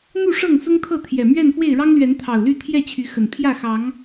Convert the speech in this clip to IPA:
n̪u˥˨ ʂɤ˥˨ŋsʊ˦ŋt̪ʰɤ˥˨t̪ʰjɛ˨˩ mɥɛ˥˨n fwe˥˨ɪ̯ɻɑ˦ŋlɥɛ˨˦n t̪ʰɑ˨˩ʊ̯ly˥˨t̪ʰjɛ˥˨ t͡ɕʰy˨˦xə˨˩n pʰjä˥˨xɑ˨˦ŋ

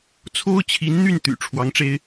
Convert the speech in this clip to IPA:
t͡sʰo˥ʊ̯t͡ɕʰi˧˥nn̪y˥˩n t̪y̰˨˩ ʈ͡ʂʰwɑ˧˥ŋʈ͡ʂe˥ɪ̯

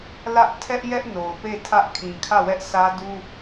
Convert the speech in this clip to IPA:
lä˦ʔ tʰɛ˦ʔjɛ˦ʔ no˨ʊ̯pe˦˨ tʰä˦ʔkʰĩ˨kʰä˦˨wɛ˦ʔ sʰä˦du˦

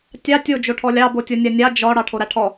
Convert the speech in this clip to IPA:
tʲɑ tʲo d͡ʒoʈʰɔlʲɑ botʲonʲanʲɑ d͡ʒɔ ɽɑʈʰoɾaʈʰɔ

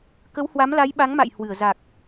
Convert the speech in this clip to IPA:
kə˨˦whwa˨˦mla˨˦j ɓa˨˦ŋma̰˧˨jhwɨ˧˩ə̯ za˨˩k̚

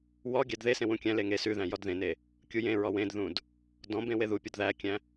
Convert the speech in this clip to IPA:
wɔ ɡʲædðesẽ wũkʲæ̃le ŋe sʉðæ̃ jɔdðẽne | kʲujẽɹɔ wẽdðũd | dɔ̃bẽ weðupʲɔd ðækʲæ̃

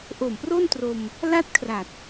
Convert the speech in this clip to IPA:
ʔo˨˩mpro˥˩ntro˧m | la˥˩t̚kʰra˨˩t̚

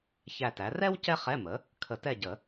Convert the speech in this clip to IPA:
çæ˦˨tæ˩˥ rɛ˥w cɛ˥χɛ˧˥˧mə˩˥ | kʰə˨˩˦tɛ˦˨ɟə˨˩˦

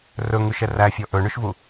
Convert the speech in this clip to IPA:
rɵŋʉʃɛ ræfʲɔ ʔɵɳʉʃvu

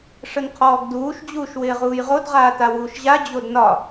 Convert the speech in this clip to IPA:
ʂənqʰɔːɡduːʃ d͡ʑuːʃwɪːʁuːjʁod ʁaːtawuːʃʑa d͡ʑodnɒ

